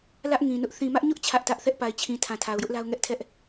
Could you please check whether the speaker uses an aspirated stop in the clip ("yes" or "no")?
yes